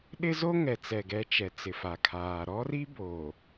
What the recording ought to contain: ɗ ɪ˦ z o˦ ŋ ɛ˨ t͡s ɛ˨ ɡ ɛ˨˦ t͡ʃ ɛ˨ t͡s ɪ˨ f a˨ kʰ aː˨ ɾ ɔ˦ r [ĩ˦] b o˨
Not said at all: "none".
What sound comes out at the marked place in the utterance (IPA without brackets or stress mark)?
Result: i˦